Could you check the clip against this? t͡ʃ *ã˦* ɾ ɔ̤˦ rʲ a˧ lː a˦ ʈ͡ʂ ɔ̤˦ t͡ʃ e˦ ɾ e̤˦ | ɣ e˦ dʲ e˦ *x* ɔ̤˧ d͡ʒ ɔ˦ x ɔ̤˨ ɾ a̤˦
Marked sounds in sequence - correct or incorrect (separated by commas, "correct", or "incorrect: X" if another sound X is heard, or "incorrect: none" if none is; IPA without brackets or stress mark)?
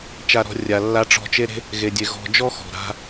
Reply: incorrect: a˦, incorrect: ɣ